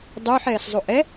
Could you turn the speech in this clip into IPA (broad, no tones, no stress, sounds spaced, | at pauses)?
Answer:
dˤ yː ħ ɛː s zˤ u ʔ ɛ